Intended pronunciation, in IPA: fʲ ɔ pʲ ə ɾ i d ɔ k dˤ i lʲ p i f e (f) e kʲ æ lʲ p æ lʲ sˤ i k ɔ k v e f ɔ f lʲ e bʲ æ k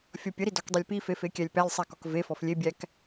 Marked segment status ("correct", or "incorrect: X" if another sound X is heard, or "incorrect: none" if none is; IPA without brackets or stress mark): correct